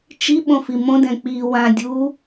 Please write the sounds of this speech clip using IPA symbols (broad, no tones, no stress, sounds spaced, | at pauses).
t͡ʃ i ɓ õ f i m õ d ɛ̃ k͡p i w ã dʲ u